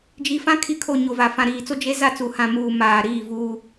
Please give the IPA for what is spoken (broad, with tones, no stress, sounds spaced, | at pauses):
d͡ʒ i˨ f ã˦ kʰ i˨ kʰ o˨ ɲ o˨ v a˨ f ã˨ ɾ iː˨ t͡s o˦ d͡ʒ e˦ z a˦˨ t͡s u˨ h ã˨ m uː˨ m aː˨ ɾ iː˦˨ v uː˦